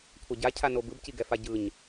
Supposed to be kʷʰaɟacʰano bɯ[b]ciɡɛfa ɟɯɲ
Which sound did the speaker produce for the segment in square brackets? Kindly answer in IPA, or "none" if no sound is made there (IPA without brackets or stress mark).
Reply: b